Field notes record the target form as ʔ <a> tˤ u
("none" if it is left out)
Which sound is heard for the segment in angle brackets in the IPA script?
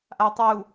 a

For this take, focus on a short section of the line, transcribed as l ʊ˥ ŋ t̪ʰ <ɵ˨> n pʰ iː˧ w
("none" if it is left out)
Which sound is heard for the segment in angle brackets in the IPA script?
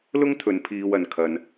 ɵ˨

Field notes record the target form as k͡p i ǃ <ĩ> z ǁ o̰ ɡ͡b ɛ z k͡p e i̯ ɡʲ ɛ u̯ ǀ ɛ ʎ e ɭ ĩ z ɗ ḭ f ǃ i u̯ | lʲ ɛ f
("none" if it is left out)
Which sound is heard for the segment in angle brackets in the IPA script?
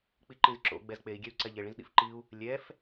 ĩ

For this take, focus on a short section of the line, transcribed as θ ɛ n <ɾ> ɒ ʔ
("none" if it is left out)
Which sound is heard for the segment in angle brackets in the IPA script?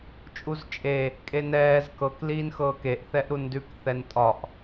tʼ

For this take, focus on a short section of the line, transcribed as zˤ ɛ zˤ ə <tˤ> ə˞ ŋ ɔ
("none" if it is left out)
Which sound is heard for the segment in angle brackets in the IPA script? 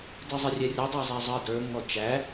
d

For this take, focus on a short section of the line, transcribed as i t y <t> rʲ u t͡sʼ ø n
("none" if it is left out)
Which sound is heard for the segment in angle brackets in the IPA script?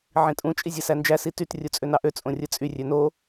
t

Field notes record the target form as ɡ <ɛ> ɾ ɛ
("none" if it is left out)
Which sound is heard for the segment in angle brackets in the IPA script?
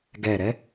ɛ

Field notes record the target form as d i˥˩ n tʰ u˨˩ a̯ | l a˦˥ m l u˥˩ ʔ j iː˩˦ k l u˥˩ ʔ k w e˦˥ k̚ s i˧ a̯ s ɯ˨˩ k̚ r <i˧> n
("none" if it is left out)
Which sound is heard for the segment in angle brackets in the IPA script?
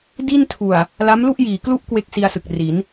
i˩˦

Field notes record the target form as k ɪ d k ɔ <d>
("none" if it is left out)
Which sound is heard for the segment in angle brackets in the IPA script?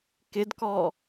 none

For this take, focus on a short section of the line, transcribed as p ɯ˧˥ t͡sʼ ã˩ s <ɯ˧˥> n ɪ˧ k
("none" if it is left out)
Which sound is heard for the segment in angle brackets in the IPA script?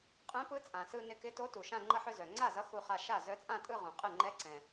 ɯ˧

